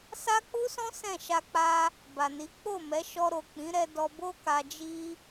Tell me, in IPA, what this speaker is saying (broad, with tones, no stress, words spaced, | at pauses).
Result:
sa˦k͡pu˦sɔ̃˦ sɛ̃˦˨ ʃa˧k͡pa˧ | ba˨ni˨˦ k͡po˦˨ mɛ˨˦ʃɔ˧ɾo˨ k͡pĩ˨˦ɾɛ˧ dɔ˧ bo˦ ka˧d͡ʒi˦